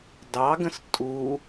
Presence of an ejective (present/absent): present